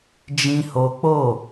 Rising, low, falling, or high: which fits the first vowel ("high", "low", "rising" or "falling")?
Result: high